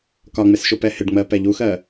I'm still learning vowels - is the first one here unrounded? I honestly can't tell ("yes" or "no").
no